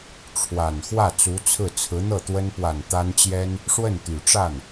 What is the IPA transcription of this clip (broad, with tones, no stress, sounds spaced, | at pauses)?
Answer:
ʈ͡ʂʰ w a˨˩ n x w ä˥˩ t͡s u˧˥ t͡sʰ ɹ̩˥˩ t͡sʰ ɹ̩˧˥ n̪ ɤ˥˩ t̪ w ə˥ n p w a˨˩ n t̪ a˥ n t͡ɕ j ɛ˥ n | ʂ w ə˥˩ n t̪ y˨˩ ʈ͡ʂ a˥˩ n